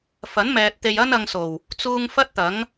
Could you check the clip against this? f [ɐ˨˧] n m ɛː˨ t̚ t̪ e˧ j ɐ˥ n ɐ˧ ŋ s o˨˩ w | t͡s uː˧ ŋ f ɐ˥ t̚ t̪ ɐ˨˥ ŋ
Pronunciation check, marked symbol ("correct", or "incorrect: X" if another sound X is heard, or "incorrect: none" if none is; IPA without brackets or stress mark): incorrect: ɐ˨˥